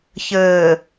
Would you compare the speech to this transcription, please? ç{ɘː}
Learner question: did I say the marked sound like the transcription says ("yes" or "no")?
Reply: yes